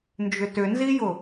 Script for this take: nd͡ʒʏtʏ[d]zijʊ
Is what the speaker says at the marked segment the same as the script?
no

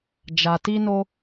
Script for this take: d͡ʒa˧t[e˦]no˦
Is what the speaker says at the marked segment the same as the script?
no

